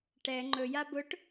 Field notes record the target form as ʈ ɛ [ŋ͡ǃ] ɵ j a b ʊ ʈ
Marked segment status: correct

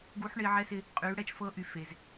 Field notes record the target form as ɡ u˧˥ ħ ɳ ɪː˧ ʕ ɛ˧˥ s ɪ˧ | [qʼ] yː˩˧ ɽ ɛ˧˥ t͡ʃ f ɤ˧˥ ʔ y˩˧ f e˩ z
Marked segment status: correct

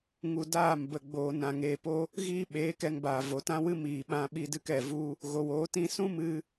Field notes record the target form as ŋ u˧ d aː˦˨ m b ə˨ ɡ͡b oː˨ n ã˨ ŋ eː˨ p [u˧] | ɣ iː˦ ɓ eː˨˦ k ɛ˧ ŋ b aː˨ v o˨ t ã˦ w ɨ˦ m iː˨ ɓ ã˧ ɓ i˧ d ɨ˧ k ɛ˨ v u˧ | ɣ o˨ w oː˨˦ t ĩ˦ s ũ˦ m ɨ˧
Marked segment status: incorrect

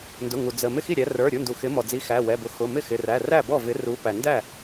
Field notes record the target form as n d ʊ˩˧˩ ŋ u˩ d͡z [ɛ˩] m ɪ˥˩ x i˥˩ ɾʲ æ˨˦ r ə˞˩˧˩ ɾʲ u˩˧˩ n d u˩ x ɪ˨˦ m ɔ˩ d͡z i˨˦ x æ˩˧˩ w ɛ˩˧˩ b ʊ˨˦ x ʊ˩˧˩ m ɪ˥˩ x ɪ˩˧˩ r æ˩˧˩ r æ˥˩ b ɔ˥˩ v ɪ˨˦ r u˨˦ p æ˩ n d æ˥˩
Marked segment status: incorrect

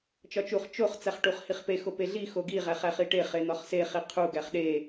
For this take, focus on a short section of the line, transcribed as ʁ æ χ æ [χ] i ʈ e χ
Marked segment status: correct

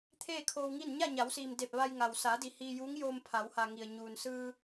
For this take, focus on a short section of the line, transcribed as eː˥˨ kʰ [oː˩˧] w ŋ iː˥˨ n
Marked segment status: incorrect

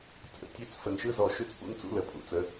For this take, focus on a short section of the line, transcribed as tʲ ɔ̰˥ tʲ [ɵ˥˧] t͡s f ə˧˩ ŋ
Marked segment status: correct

